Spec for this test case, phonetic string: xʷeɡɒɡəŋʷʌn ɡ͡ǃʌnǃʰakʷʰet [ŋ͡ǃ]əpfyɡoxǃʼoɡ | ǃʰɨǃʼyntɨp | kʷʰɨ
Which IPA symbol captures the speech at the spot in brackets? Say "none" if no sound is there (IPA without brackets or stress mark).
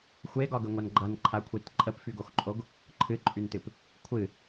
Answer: ǃʼ